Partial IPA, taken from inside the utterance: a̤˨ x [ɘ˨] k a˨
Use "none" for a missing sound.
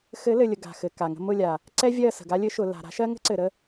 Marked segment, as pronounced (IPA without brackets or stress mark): ɘ˨